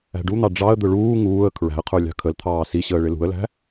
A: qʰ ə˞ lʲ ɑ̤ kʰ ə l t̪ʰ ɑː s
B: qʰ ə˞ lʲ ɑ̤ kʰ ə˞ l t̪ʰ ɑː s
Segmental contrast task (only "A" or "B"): A